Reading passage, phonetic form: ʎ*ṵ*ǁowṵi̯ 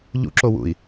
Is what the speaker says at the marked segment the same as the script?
yes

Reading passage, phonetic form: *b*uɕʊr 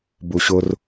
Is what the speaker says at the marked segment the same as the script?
yes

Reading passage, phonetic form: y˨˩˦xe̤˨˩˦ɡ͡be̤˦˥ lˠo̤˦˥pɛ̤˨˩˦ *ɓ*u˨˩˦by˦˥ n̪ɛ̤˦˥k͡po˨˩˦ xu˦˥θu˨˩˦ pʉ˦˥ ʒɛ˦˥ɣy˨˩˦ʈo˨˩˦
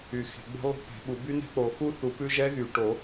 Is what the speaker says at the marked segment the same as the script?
yes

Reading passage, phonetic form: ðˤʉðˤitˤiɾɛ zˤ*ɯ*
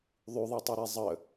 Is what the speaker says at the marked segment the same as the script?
no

